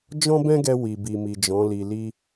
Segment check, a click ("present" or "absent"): absent